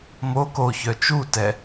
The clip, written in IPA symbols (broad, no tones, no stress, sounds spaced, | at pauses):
m o k o ç œ t͡ʃ u t ɛ